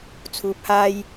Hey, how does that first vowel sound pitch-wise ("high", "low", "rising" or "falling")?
low